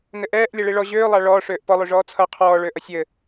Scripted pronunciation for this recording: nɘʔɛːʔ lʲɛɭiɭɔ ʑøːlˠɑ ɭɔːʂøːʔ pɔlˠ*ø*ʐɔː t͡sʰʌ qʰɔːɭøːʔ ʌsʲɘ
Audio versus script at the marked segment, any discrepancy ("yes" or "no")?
no